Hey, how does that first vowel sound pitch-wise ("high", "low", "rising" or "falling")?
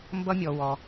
high